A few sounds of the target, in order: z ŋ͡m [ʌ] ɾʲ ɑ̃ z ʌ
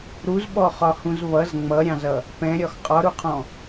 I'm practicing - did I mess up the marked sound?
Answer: no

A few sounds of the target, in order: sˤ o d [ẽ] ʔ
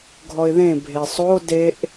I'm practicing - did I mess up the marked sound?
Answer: yes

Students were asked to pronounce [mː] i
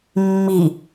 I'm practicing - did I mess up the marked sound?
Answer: no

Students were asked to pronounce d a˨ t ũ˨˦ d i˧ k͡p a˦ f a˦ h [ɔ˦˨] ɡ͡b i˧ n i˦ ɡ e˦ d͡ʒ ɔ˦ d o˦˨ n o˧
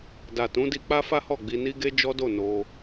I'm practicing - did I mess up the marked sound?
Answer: no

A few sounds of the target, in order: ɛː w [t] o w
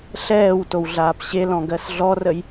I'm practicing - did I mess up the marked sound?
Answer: no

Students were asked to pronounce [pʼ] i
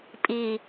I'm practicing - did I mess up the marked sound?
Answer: no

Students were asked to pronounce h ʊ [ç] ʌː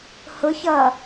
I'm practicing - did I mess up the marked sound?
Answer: no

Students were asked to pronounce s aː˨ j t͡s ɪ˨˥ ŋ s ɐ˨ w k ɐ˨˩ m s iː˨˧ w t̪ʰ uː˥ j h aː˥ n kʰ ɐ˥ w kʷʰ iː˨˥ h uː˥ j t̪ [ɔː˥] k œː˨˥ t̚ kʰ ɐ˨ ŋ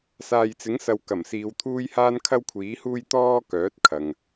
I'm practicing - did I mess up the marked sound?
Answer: no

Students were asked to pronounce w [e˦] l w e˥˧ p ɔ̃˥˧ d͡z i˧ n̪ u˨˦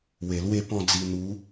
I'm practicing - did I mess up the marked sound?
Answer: yes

